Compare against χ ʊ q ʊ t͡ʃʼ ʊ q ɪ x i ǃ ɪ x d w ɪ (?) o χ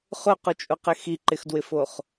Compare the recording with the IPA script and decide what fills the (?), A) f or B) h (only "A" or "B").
A